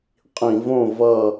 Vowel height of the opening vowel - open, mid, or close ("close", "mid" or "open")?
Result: close